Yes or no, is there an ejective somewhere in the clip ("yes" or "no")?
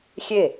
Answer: no